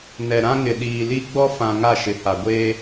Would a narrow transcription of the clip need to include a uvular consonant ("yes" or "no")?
no